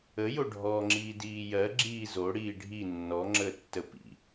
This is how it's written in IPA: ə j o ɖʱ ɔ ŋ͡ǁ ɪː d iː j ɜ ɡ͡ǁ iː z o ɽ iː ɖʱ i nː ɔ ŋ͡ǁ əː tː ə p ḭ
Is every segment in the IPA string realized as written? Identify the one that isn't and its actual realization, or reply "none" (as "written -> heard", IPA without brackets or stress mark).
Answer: ɪː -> iː